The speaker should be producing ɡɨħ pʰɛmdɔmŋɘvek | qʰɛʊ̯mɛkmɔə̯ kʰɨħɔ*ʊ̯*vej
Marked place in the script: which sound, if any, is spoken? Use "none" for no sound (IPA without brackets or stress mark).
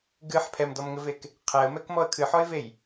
ɪ̯